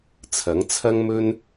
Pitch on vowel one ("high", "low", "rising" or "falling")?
rising